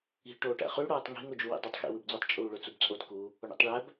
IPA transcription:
i̤ ʈoːʈæ̰χy ɽoːtˤŋi̤ŋ od͡ʒuwḭdˤøtˤ xḭwɯbd͡zutˤ t͡ʃʼuːɭøt͡subt͡sʼot ku | oɳḭtˤɭæb

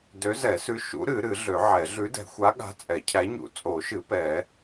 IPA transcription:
dø˨˥zɛ˨˩˦sʉ˨˥ ʃṵ˨˥ɾɨ˨˩˦ ɾɨ˨˩˦ɮø˨˩˦ʕɛ˨˩˦ ɮʉ˨˥dɛ̤˨˩˦xʷa˨˥ ɠa̤˨˥ t͡sʼɛ˨˩˦cʰæ˨˥ɲṵ˨˩˦ t͡sʼo˨˩˦ʃɨ˨˩˦ pɛ˨˩˦

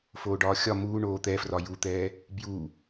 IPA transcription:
foːɖɒːxʲɒ muː ɳoːt̪ɛfrɒ jut̪ɛː | bju

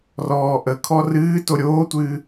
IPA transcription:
rɔːʔəkʰɔ rɨː toɾʲoːtʷɨː

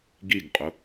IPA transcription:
ɡiɡqʼʊ

